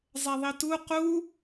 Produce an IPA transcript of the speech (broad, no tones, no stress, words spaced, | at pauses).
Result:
zˤɛðˤitu qu